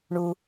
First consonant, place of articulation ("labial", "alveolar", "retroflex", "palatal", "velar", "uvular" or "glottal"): retroflex